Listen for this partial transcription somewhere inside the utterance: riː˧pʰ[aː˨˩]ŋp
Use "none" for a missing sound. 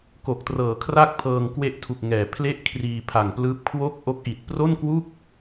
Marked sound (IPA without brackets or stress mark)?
a˨˩